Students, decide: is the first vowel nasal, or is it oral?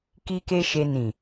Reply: oral